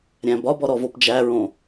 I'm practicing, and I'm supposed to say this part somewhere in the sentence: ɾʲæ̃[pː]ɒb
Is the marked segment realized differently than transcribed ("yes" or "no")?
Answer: yes